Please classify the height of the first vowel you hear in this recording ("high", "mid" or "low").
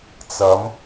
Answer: low